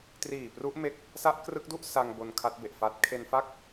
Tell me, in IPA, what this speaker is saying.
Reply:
t r iː˨˩ p r u˦˥ ʔ m e˦˥ k̚ | s a˦˥ ʔ k r ɯ˦˥ k̚ d u˥˩ ʔ s a˧ ŋ b o˧ n kʰ a˦˥ t̚ b e˨˩ ʔ f a˦˥ t̚ kʰ e˧ n f a˥˩ k̚

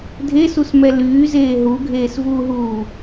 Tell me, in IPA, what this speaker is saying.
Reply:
dʱ e s u s m ɛ l yː z eː ɦ u ɡʱ eː s v uː ɦ uː

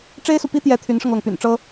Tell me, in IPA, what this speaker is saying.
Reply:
ʈ͡ʂ e˥ ɪ̯ s u˨ p i˥ t̪ j ɛ˧˥ t̪ʰ y˧˥ n ʂ ɤ˧ ŋ l ɤ˩ ŋ p y̰˨˩ n ʈ͡ʂ ɤ˥

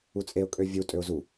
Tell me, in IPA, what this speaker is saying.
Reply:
u t͡sʼ e ʊ̯ kʼ ø vʲ u tʼ ø ʊ̯ z u

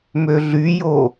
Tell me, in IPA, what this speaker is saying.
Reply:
m ø ɮ y j o

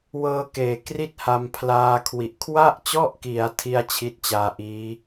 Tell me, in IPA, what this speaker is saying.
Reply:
w ɤː˧ k eː˨˩ k r i˥˩ t̚ h a˧ m pʰ l aː˧ kʰ w i˨˩ ʔ kʰ w a˥˩ ʔ t͡ɕ ɔ˥˩ ʔ k i˩˦ a̯ tʰ i˥˩ a̯ t͡ɕʰ i˦˥ t̚ t͡ɕ aː˧ ʔ iː˦˥

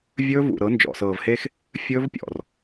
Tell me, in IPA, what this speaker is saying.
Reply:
vʲ ɵː˦ v ṵ˨ ɾ ɤ˨˦ n d͡ʒ ɔ̰˨ s ɤː˨ v h e˦ x | fʲ ɵː˦ v pʲ ɔ̰˨ r

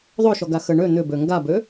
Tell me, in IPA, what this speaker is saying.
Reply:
ðˤ ø ʃ ɔ ɡ a x ə ɳ ø n̪ ʏ b ø ŋ ɡ a b ø

